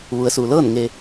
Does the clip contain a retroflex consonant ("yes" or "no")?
no